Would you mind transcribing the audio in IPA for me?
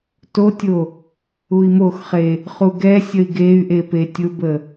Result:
t o tʲ o | u i̯ m o x χ e | χ u ɡ ɛ sʲ ə i̯ ɡ e y̯ ʔ e p e tʲ ʊ b ə

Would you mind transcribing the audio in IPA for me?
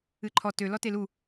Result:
ɨ ǃʰ ɔ t ø l ɔ t e l u

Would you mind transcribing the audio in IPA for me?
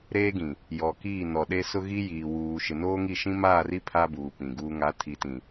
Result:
ɾ eː˦ ɡ ĩ˨ | j ɔ˨ k iː˦˨ n ɔ˨ ɗ e˦ s ʊ˦ ɣ i˦ j iː˨ w uː˨ ʃ ɪ˨ n oː˦ ŋ i˦˨ ʃ ĩ˦ m aː˦˨ r i˦ pʰ a˦ b uː˨ p ĩ˨ ɡ uː˦ ŋ a˨˦ tʰ i˨ t ĩ˨

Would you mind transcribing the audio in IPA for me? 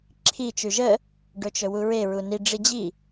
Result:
ǁʰ i t͡ʃ ʉ ʒ ə | ɖ ɵ t͡ʃ ɵ w u ɹ e ɹ u n i ɖ͡ʐ i d͡ʑ i

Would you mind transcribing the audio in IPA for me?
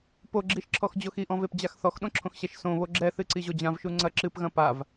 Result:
p o ɡ͡ǁ i ʃ ǁʰ ɔ x d͡ʑ o x i ʔ ɔ̃ v e p d͡ʑ a x θ ɔ x ɗ õ ǁʰ õ x ɕ ɛ ʃ s õ β o ɡ͡ǁ ɛ θ ɨ ǀ i ʑ o d͡ʑ ã v ʃ u ŋ͡ǀ ɐ ǁ ɨ p ɣ ɐ̃ p a v

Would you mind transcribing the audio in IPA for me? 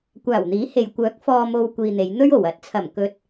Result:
kʷ aː˨˩ w n̪ iː˨˥ h e˨ j kʷ œː˨˥ k̚ f ɔː˨ m o˨ w kʷ iː˨ n̪ e˨˧ j n̪ ɵ˥ ɥ o˨˩ w ɐ˨˥ t̚ t͡sʰ ɐ˨˩ m k ɵ˧ t̚

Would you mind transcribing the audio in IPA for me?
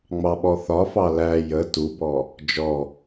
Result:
ŋ͡m ɑ ɓ ɔ θ ɒ f ɑ l æ j ə t u b ɔ | d͡ʒ ɔ

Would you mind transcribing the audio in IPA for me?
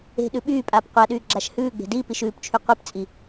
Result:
e̤ ɗ ʉ ɓ yː pʼ aː p qʷ a ɗ yː ɡ͡ǁ a ʃ h ʉː ɡ͡b e̤ d iː p i ʃ ʉː p t͡ʃʰ y qʷ e p t͡sʼ i

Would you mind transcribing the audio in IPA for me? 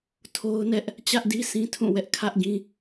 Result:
tʰ o˦ ʊ̯ n ɛ˦ ʔ | t͡ɕ ä˦ ʔ d i˦ s ĩ˦ tʰ ũ˦˨ w ɛ˦ ʔ kʰ ä˦ ʔ ɡ ĩ˦

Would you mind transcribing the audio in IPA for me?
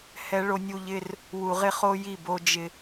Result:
h ɛ˦ ɭ o˦ nʲ u˦ ʎ ɪ˦ r | w u˨ ʁ ɪ˦ χ o˦ j i˦˨ b o˦ d͡ʒ ɪ˦

